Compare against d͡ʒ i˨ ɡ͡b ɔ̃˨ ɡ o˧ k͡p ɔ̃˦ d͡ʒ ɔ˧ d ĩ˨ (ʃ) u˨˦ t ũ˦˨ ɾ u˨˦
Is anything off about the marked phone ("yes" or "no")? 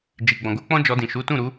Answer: no